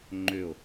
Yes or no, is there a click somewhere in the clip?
yes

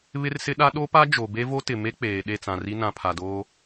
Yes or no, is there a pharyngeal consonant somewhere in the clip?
no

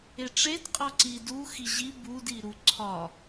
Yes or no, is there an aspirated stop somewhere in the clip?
yes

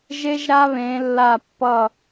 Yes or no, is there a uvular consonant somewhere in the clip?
no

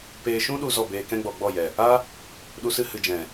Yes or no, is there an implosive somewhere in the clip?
yes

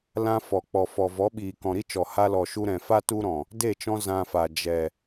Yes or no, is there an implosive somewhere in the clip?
yes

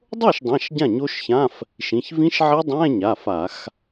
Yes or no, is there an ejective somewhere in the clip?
no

